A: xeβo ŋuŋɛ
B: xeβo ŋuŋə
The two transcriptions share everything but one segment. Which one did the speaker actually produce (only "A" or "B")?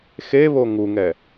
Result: A